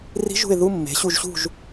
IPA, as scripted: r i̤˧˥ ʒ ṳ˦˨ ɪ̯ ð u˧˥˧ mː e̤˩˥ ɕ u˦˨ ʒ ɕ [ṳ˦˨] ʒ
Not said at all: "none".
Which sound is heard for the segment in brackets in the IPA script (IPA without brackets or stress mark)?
ṳ˦˨